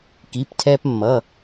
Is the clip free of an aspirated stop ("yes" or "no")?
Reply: no